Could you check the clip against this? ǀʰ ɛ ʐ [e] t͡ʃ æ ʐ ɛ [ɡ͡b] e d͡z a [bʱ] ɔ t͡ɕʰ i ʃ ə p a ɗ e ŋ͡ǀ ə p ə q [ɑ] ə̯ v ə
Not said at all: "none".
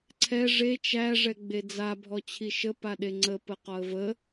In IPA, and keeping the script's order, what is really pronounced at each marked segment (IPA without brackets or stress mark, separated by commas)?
e, ɡ͡b, bʱ, ɒ